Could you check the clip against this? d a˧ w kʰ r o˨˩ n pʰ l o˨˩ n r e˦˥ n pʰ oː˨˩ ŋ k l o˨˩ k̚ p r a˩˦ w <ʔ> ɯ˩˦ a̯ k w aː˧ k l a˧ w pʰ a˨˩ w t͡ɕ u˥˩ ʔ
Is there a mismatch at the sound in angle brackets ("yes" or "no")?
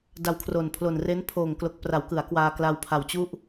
yes